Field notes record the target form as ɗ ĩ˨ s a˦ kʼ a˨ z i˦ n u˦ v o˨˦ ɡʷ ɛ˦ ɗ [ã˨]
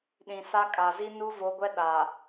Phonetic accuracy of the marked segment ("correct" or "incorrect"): incorrect